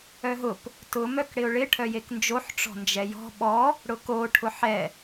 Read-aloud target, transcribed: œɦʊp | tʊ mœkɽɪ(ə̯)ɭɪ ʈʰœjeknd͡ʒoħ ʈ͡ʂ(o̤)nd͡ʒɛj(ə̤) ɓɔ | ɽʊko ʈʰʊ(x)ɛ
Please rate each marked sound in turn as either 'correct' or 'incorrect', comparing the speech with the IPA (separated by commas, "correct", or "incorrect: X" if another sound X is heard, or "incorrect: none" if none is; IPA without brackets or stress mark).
incorrect: ʊ̯, incorrect: ɔ̤, incorrect: ɔ̤, incorrect: ħ